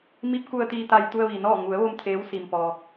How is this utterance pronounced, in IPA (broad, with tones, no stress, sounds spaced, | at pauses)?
m i˧˥ p̚ k u˧ ə̯ t̪ iː˧ t̪ a˧ j t̪ u˧ ə̯ ʋ i˩ n ɔː˥˨ ŋ u˩˧ ə̯ ʋ o˧ m t̪ʰ eː˧˥ w s i˧ m p ɔː˧